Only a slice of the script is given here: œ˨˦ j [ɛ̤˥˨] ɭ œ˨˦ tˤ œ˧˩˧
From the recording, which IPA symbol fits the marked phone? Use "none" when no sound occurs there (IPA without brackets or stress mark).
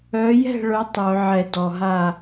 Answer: ɛ̤˥˨